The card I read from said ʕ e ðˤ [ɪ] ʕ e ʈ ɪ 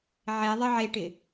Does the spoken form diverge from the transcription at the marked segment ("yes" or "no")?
no